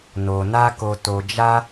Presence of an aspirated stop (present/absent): absent